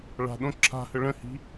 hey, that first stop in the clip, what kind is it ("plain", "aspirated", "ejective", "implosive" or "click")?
implosive